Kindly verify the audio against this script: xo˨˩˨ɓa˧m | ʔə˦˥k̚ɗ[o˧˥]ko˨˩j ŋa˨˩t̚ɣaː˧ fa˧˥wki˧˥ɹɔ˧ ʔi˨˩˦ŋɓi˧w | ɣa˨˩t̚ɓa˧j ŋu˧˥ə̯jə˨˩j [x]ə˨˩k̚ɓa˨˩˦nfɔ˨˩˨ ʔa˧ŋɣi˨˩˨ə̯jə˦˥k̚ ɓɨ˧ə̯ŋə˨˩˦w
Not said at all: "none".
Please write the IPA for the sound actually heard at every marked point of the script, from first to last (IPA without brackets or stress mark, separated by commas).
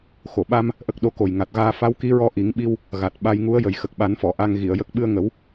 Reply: o˧˥, x